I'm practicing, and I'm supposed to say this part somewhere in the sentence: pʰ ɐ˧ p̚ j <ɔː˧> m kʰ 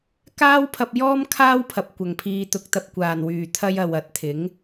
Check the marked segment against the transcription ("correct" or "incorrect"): incorrect